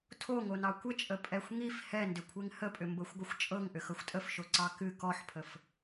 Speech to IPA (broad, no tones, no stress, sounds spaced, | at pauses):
tʰ o ŋ o n ɑ kʷ ə t͡ʃʼ ə pʼ ɛ xʷ ŋ i f h ɛ n d ʏ kʷʰ e ŋ h ə pʼ ʏ m b ɤ xʷ ɡʷ ɨ xʷ t͡ʃʼ ɤ ŋ ʔ ʏ x ɤ xʷ tʼ ə f ʃ o ǀ ɑ k ɨ k ɔ ħ pʰ ə f